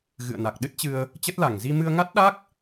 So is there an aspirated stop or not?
no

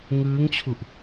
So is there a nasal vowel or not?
no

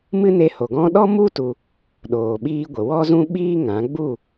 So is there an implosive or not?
yes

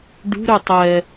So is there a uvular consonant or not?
no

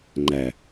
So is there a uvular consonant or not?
no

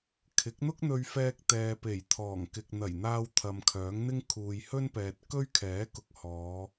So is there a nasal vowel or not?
no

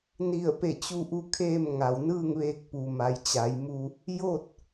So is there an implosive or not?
no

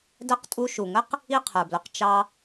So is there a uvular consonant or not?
yes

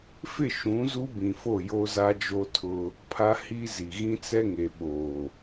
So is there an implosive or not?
yes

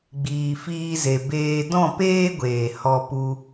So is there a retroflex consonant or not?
no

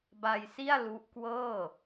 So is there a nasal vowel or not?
no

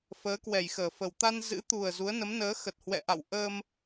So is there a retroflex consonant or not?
no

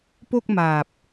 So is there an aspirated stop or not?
no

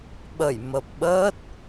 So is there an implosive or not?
yes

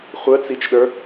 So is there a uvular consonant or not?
yes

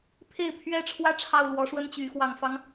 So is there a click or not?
no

